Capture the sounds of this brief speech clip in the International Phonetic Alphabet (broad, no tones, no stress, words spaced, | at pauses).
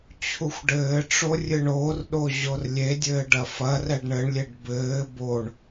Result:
t͡ɕʰuxʷɖɘːʈ͡ʂo rʲɨɳoːrɗo ʑorlʲedʲɘː ɖɐfɐrɛɖ ɳɘɳlʲeɖ bɘː boɳ